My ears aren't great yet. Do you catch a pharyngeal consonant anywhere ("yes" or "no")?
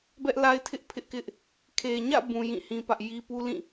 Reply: no